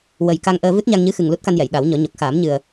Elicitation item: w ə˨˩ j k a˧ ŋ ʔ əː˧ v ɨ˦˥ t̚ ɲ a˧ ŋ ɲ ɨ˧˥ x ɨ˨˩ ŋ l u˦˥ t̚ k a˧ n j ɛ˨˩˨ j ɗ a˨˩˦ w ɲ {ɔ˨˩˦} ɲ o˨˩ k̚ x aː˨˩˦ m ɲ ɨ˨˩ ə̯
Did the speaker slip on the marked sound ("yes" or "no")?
no